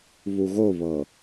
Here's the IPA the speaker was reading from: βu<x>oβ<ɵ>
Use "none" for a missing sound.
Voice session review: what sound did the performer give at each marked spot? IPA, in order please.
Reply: ɣ, ɤ

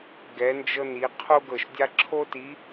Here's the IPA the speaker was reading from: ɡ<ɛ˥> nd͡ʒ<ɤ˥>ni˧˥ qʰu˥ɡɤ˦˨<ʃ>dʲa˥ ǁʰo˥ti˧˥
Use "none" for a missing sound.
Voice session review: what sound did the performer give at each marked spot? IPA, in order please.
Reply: ɛ˧˥, ɤ˥, ʃ

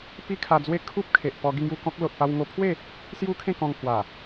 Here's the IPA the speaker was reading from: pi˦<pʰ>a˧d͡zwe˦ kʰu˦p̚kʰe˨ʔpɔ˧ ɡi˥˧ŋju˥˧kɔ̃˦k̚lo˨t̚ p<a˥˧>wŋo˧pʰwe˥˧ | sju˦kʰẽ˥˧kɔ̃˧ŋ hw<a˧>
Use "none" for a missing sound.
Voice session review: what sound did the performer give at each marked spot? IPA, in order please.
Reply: kʰ, a˧, a˨˩

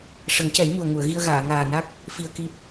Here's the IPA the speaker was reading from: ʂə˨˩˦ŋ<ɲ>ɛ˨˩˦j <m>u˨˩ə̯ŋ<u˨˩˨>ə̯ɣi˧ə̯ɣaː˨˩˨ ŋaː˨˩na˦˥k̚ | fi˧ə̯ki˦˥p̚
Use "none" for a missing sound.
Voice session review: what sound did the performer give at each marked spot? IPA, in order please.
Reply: c, m, u˨˩˨

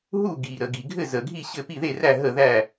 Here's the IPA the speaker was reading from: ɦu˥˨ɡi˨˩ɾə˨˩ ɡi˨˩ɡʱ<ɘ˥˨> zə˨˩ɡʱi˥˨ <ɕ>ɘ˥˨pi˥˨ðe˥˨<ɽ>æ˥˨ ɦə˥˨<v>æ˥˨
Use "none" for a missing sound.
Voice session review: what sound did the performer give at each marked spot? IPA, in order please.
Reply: ɘ˥˨, ɕ, r, ð

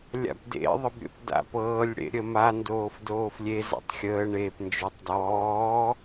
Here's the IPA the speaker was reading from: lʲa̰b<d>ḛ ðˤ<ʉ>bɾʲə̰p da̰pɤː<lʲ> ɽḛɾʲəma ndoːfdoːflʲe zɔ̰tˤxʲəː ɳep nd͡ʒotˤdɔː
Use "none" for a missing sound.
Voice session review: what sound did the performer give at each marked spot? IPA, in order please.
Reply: d, ə, lʲ

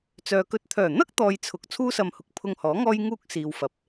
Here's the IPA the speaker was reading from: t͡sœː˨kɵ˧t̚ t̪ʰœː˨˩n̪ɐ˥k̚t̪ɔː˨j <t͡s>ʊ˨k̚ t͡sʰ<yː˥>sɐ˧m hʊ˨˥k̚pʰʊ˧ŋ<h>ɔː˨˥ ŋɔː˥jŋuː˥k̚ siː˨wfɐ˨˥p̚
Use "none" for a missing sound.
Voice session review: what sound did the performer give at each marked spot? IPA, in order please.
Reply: t͡sʰ, uː˥, h

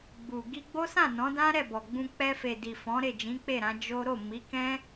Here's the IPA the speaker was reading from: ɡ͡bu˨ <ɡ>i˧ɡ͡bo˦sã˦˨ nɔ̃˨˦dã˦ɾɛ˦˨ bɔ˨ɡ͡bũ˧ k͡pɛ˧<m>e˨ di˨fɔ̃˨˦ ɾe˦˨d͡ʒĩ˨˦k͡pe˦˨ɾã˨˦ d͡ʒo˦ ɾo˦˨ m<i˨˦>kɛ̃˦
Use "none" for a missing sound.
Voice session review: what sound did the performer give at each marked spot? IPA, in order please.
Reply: ɡ, f, i˨˦

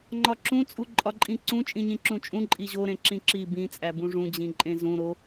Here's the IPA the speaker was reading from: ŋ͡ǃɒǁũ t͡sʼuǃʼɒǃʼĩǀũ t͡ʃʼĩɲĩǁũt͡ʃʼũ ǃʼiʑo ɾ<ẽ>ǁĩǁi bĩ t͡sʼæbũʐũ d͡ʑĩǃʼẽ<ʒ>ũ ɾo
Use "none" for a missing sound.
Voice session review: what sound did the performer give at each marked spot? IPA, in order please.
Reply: ẽ, z

